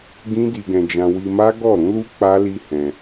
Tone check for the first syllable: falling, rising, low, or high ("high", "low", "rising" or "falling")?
high